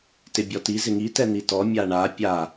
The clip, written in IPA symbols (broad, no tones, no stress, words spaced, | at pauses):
tɪbʲɔti zɪŋi tɛn̪itɔ mʲaɳa pʲa